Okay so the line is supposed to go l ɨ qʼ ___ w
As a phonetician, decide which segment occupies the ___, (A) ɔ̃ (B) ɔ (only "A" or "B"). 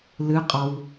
B